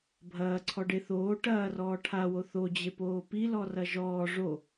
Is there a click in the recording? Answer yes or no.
yes